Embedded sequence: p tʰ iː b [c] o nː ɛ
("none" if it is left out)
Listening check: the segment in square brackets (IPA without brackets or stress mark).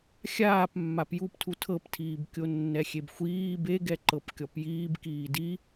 kʲ